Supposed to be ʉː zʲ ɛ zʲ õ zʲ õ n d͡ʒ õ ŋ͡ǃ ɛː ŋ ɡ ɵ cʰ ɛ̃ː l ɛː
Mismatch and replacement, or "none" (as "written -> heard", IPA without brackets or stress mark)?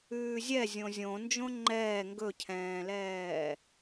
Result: none